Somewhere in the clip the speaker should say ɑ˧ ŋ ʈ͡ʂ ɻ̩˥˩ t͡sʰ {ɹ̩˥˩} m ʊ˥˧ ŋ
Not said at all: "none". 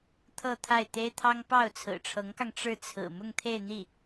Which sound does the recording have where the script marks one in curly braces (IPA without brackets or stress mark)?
ɹ̩˨˩